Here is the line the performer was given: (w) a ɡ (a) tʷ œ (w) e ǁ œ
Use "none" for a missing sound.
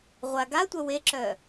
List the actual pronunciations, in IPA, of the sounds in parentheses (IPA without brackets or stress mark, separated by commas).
ʁʷ, a, w